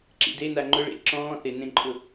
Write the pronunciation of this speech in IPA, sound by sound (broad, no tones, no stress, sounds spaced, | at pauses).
ǁ ḭ d e n a ŋ͡ǃ ʊ ɭ ḛ ǁ ɔ̃ː θ ɪ n ẽ ǃʼ ʊ